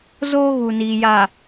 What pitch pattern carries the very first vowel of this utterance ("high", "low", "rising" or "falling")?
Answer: high